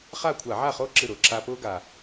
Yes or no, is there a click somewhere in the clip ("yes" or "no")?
yes